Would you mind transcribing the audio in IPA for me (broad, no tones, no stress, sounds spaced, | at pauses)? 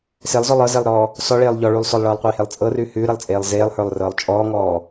s e lˠ z ɔ lˠ ɤ z e lˠ ɾ ɔː | s ɔ ɭ eː lˠ ʎ ɔ ɭ ʉː lˠ s ɔ lˠ ɭ ɤː lˠ qʷ eː h e lˠ t͡sʼ ɤ r ʉ h ʉː ɾ ɛ lˠ t͡sʼ eː lˠ z eː lˠ h ə˞ lˠ r ɤː lˠ t͡ʃʼ ɔː ŋ ɔː